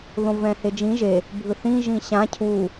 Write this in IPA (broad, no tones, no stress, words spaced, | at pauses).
ðõvɛ̃hed͡ʒĩ ʒe | bʱɯθĩ ʒĩɕã cʰu